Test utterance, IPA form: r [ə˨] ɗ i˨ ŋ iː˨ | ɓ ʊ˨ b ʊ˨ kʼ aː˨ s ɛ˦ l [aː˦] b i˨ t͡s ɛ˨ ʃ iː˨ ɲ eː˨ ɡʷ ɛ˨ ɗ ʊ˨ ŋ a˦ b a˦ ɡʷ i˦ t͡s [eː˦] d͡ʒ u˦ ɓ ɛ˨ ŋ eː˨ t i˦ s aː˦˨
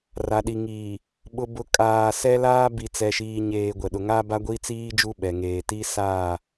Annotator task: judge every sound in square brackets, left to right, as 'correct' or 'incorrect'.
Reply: incorrect, correct, incorrect

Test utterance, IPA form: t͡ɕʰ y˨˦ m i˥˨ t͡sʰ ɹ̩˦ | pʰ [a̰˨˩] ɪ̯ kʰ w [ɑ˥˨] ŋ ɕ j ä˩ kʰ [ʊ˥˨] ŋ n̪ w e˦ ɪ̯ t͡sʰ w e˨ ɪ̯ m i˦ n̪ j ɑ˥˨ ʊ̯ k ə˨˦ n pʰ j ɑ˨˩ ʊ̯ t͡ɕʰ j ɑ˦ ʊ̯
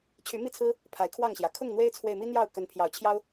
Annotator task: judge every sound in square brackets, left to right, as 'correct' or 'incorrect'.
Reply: incorrect, correct, correct

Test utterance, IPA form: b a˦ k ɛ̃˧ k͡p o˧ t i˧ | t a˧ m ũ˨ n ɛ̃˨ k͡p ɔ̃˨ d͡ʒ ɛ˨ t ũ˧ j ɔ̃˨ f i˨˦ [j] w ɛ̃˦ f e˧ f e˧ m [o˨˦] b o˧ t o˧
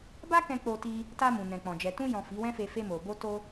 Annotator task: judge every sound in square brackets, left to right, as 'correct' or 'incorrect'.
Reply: incorrect, incorrect

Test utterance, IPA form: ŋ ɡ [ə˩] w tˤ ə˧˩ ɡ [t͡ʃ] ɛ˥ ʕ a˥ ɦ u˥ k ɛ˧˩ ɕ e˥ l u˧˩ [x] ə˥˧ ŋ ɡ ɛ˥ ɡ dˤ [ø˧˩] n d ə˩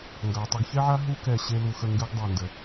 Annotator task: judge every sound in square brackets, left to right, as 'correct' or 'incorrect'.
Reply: incorrect, incorrect, correct, correct

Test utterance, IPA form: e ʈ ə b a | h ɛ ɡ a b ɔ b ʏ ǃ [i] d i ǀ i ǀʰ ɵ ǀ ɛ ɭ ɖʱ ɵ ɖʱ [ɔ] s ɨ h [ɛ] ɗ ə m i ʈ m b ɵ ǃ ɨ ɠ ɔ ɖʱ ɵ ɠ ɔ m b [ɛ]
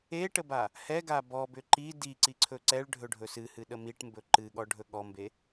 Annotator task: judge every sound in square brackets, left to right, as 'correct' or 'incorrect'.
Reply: correct, incorrect, incorrect, incorrect

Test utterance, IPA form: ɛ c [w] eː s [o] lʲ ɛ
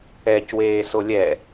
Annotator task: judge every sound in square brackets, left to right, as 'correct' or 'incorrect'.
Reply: correct, correct

